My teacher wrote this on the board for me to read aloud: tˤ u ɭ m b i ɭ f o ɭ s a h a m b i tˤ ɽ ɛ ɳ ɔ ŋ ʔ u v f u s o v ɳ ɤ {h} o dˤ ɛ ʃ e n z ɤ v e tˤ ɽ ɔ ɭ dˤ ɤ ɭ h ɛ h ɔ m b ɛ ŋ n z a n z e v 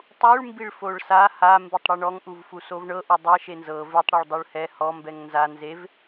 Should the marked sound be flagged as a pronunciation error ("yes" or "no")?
yes